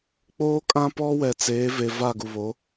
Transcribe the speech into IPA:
k͡p oː˦ kʼ ã˦ p ɔ˦ w ɛ˨ t͡s eː˨˦ v e˨ v a˦˨ ɡ u˨ β o˨˦

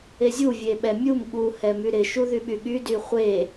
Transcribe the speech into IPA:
e zʲ u vʲ e ɓ ɛ mʲ u m ɠ u h ɛ m y ɾ ɪ ʃ u ð y ɓ y ɠ y d y χʷ e

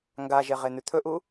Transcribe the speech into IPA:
ŋ ɡ a ʒ e ʁ e n̪ ʉ t̪ʰ ɵ ʔ u

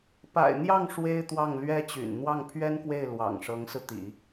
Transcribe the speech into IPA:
p a̰˨˩ ɪ̯ n̪ j ɑ˥˩ ŋ ʂ w e˥ ɪ̯ t̪ w ɑ˥˩ ŋ l ɥ ɛ˥ t͡ɕ y̰˨˩ n n̪ w ɑ˥˩ ŋ pʰ ɥ ɛ˥ n k w e˥˩ ɪ̯ l w ɑ̰˨˩ ŋ ʂ ɤ˧˥ ŋ s ɹ̩˧ t̪ ḭ˨˩˦

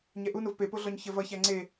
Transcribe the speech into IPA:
ɲ ɛ ʔ u n o v p e p o ɮ ɔ ɲ ç ə v ʌ ç æ ŋ͡ǀ e

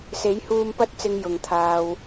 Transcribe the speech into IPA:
s e˨˥ j h uː˧ m p ɐ˧ t̚ t͡s ɪ˨ ŋ j ʊ˨ ŋ t̪ʰ aː˧ w

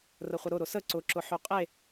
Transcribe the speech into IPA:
r ə χʷ ə ɾ ʊ ɾ ʊ s ə ǀ ʊ ǁ ʊ ħ ʉ qʼ e

